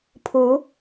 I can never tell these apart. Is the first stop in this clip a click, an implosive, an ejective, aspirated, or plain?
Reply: aspirated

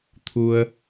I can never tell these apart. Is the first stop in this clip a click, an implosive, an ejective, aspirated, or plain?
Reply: aspirated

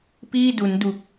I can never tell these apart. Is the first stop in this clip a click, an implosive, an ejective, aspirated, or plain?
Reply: plain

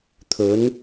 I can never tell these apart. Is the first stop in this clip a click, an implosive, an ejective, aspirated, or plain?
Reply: aspirated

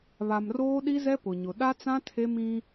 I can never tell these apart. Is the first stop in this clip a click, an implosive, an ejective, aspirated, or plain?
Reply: implosive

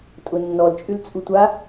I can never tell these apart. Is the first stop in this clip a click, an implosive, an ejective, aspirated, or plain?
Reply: ejective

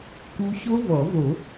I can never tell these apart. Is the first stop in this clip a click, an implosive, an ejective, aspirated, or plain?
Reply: plain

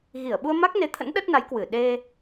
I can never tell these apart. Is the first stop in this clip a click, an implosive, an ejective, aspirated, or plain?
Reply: implosive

